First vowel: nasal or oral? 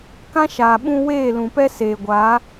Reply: nasal